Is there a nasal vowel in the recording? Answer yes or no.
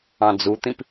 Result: yes